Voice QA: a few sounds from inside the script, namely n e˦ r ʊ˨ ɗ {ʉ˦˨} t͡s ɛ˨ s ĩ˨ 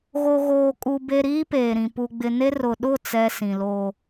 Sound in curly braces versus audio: incorrect: ʊ˦˨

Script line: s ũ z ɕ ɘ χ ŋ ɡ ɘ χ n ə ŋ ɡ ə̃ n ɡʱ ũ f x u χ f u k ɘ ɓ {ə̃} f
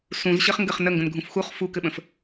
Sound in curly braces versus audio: correct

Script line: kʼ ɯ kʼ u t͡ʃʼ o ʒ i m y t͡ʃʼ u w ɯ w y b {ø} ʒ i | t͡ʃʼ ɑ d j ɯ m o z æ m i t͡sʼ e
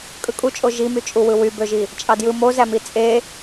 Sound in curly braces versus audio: correct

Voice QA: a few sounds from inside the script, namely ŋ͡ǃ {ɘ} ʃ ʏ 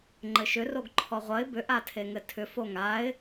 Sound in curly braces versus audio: correct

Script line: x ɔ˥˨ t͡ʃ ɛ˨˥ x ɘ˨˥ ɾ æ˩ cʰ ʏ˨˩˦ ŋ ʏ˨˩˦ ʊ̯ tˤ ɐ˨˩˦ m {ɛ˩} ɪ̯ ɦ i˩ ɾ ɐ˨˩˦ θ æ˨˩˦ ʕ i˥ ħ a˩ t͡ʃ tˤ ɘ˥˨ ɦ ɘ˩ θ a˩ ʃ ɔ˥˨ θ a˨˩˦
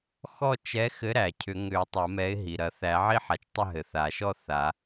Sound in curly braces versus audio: incorrect: ɛ˨˥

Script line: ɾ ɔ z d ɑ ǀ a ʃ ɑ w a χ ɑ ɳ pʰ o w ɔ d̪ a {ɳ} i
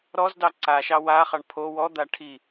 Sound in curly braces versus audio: incorrect: ʈʰ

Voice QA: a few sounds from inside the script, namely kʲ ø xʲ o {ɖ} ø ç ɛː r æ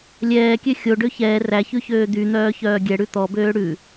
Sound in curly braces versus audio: correct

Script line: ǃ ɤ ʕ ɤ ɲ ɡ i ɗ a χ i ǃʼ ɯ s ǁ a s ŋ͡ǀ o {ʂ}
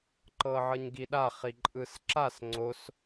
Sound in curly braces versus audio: incorrect: s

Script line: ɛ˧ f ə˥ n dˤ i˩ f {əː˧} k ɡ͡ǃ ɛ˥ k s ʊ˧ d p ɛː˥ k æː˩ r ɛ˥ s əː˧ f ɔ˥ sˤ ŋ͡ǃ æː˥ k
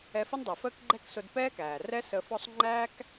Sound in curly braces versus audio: incorrect: əː˥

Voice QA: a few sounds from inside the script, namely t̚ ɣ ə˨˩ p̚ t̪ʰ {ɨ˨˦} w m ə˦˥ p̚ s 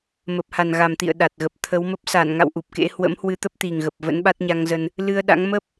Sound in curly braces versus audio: incorrect: ə˨˦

